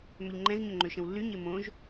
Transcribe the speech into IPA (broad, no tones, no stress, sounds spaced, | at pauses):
m ʏ ʎ ŋ͡ǃ ɛ̃ z ɲ ʏ ŋ͡ǃ ø ʃ ə̃ w lː y ɲ ɪ m õ ʒ